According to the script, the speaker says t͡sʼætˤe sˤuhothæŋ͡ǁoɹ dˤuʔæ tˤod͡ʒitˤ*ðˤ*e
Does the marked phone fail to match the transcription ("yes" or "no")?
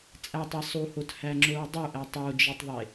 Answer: no